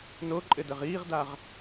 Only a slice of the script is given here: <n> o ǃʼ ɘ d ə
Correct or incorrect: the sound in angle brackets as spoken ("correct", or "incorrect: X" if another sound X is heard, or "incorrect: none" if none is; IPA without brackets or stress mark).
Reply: correct